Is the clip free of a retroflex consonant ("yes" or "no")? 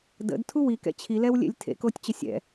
yes